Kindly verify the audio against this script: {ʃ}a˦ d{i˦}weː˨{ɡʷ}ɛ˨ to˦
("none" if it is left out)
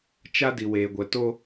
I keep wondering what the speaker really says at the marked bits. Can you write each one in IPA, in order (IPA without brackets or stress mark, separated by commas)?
t͡ʃ, i˨, ɡʷ